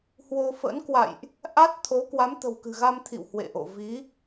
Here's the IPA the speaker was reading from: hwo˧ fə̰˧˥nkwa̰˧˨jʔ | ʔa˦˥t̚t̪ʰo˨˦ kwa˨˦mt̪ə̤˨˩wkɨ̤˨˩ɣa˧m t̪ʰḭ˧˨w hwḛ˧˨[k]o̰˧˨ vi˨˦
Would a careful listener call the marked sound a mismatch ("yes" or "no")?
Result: yes